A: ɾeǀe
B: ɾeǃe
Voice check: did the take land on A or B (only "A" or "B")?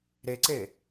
A